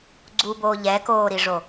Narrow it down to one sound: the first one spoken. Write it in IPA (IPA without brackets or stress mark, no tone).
ɡ͡ǀ